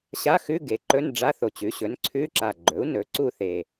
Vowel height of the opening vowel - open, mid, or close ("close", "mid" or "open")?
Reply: open